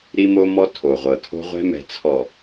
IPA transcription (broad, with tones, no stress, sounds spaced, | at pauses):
ɾ i˦ m o˦ m ɔ˦ tʰ o˨ ʁʷ ɤ˨ tʰ o̤˦ ʁʷ ɛ̤˦ m ɛ̤˨ t͡sʰ ɔ˨